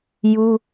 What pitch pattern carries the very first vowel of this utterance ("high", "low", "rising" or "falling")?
high